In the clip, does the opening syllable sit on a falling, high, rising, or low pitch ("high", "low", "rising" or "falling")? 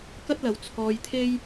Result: high